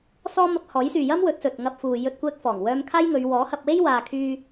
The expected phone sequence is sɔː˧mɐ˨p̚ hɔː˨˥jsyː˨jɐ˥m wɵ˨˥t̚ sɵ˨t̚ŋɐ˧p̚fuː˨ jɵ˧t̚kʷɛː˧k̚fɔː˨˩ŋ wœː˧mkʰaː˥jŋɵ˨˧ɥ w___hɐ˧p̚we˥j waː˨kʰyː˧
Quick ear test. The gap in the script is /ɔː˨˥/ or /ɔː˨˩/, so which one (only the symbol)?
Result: ɔː˨˥